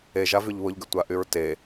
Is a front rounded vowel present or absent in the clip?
present